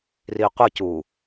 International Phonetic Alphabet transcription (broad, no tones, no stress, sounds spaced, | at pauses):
r i qʷ ʌ c u